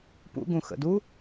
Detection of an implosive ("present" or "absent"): absent